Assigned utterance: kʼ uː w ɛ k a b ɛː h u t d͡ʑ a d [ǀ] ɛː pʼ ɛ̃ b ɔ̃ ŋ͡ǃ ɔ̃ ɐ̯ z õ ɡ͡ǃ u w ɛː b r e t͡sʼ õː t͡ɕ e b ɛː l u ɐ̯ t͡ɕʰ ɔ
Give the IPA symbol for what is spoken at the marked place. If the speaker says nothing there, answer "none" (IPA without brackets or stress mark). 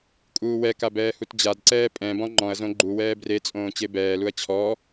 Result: ǀ